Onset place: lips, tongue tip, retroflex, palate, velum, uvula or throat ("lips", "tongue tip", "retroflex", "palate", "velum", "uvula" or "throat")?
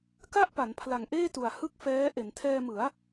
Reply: velum